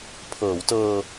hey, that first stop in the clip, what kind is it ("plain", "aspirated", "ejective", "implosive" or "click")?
aspirated